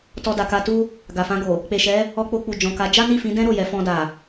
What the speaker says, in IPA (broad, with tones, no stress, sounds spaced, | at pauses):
t ɔ˧ d a˨ k a˧ t u˦ | ɡ a˨ f ã˧ ɡ o˨ | k͡p e˨ ʃ ɛ˨˦ | ɔ˧ k͡p o˧ k͡p u˨ d͡ʒ ɔ̃˨ k a˨˦ d͡ʒ a˦ n i˦˨ f ĩ˨˦ d ɛ̃˦ ɾ o˦˨ j ɛ˨˦ f ɔ̃˧ d a˨